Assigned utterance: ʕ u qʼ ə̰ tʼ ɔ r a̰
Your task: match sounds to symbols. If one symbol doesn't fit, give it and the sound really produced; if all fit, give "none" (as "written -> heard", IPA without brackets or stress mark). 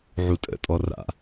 qʼ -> tʼ